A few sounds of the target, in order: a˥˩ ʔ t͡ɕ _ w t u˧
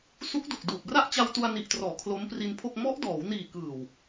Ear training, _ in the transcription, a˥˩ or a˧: a˧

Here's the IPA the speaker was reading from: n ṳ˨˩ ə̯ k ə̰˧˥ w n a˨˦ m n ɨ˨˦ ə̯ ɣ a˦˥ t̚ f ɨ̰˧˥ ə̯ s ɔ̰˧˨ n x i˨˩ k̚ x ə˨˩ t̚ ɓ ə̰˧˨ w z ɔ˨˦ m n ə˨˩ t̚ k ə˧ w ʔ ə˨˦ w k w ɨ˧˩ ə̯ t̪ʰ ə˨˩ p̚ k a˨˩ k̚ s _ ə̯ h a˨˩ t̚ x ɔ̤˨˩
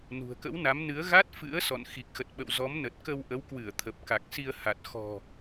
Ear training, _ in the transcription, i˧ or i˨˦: i˧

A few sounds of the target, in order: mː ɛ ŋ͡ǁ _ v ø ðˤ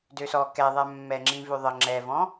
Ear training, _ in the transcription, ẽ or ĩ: ĩ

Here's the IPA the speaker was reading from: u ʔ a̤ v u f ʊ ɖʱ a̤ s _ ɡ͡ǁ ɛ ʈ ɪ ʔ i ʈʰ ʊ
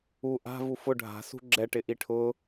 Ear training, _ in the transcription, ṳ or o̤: ṳ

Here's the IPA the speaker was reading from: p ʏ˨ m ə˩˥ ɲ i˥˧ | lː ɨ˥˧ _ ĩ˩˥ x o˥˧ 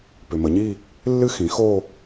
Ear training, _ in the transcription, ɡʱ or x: x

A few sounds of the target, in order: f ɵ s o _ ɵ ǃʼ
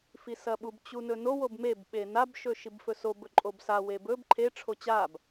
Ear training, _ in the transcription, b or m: b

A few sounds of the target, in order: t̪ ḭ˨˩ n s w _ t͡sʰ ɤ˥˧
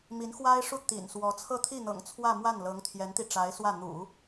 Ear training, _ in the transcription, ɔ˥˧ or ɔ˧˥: ɔ˧˥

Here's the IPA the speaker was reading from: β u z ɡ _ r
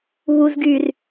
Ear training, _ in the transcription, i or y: y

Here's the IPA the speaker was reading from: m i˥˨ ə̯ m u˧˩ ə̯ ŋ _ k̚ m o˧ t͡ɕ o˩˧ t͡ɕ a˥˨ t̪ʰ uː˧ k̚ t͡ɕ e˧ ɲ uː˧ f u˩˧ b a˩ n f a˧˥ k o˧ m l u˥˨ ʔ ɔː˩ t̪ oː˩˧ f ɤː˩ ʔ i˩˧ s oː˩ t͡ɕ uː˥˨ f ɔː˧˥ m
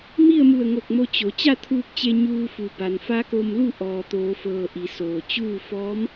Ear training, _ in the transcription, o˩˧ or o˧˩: o˧˩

